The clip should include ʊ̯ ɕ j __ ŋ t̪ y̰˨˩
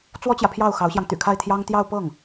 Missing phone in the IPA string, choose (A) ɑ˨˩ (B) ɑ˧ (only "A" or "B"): B